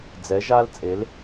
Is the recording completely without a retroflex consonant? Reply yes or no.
yes